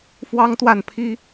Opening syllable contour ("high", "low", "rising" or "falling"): high